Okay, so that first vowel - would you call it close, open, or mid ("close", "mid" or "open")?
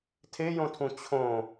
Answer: mid